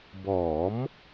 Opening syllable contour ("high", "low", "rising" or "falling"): rising